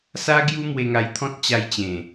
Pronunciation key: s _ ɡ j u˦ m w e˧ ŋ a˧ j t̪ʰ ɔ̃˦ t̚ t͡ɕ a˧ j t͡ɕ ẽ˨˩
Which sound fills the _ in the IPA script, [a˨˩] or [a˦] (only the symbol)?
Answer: a˦